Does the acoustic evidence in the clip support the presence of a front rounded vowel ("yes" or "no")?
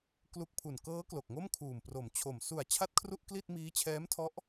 no